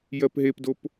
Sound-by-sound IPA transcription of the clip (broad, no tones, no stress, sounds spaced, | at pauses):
j ɜ p ɦ e p d o p